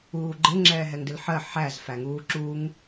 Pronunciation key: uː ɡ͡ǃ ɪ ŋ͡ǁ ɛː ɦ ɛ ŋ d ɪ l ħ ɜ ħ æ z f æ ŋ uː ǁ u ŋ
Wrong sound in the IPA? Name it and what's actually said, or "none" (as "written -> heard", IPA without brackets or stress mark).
none